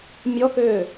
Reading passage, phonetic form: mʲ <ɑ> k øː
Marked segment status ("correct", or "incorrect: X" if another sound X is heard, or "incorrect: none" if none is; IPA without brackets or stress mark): incorrect: ɔ